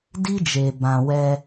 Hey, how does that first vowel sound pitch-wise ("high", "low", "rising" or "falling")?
high